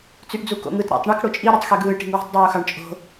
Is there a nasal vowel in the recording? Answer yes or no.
no